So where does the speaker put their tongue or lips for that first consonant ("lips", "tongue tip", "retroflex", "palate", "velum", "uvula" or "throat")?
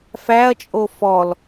lips